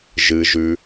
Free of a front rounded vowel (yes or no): yes